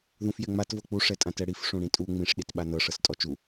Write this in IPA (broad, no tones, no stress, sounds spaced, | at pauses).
ð ũ f j ɛ ŋ͡m a t v ɤ k͡p u ʂ ɛ tʼ ã t ɛ ɽ i f ʂ ũ ɽ ĩ tʼ u ŋ͡m ĩ ʂ ɗ i t ɓ a n ɤ ʂ ɤ s tʼ ɔ t͡ʃ u